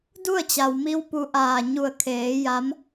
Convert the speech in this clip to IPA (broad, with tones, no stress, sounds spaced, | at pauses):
d u˥˨ ə̯ t͡ɕ a˩ w m i˧ w p u˧ ʔ aː˧˩ ɲ u˧˩ ə̯ kʰ eː˩˧ j a˧˥ m